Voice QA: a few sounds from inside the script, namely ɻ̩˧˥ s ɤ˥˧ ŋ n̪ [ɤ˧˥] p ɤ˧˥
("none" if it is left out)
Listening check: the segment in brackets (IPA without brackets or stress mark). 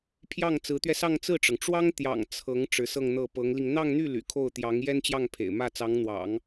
ɤ˥˩